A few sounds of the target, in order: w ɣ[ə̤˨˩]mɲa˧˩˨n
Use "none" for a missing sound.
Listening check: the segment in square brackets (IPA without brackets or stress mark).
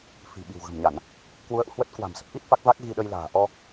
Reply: ə̤˨˩